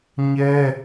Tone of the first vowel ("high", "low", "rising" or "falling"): high